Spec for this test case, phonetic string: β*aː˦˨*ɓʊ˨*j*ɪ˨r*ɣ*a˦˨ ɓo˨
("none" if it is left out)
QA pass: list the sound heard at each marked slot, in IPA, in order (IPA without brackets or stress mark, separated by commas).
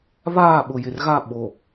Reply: aː˦˨, j, ɣ